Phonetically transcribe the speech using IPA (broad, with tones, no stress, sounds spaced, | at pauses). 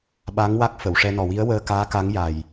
ɓ a˧˥ ŋ w a˦˥ k̚ f ə˨˩˨ w ʂ ɛ˧ n ɔ˨˩ w i˧˥ ə̯ w əː˧ k aː˧˥ k a˧˥ ŋ j a˨˩ j